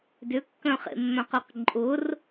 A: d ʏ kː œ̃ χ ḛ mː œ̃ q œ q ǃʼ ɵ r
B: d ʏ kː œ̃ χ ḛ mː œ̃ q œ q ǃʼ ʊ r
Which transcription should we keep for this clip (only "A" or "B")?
B